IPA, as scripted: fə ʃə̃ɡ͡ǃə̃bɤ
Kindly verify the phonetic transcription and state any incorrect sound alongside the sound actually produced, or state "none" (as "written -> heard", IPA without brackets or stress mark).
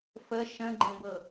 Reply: none